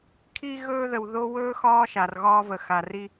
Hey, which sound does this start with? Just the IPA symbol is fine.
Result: kʰ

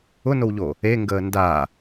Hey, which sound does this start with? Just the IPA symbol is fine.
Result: ʊ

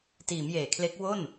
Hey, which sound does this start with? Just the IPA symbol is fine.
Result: t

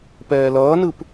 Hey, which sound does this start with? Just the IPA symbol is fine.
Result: p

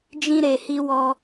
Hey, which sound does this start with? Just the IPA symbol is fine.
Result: d͡ʒ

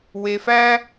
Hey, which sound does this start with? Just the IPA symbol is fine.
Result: w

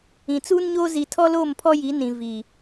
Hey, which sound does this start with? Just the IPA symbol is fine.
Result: ĩ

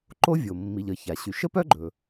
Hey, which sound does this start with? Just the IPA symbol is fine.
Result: ǃ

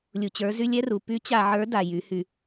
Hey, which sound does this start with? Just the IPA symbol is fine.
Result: lʲ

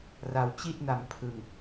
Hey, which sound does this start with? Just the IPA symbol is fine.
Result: r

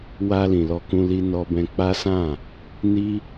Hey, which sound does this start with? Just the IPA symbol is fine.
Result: w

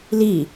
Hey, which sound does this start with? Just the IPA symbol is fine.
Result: l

